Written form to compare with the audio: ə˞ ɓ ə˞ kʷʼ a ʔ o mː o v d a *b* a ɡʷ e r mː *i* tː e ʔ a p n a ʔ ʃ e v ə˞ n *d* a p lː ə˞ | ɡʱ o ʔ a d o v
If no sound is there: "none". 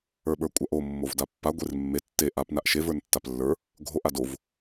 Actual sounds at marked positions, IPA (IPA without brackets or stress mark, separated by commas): pː, e, tː